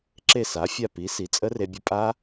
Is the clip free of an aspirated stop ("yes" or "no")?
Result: yes